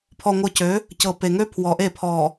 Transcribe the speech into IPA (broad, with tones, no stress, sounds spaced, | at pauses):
pʰ ɔ˨ ŋʷ ɤ˨ c ø˨˦ | c ɤ˨ p e˨ ŋ ø˦ pʰ w ɔ˨ ʔ e˦˨ pʰ ɔ˨